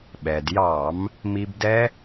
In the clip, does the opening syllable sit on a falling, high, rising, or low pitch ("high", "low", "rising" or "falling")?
low